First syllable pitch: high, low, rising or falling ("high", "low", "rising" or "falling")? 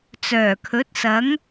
low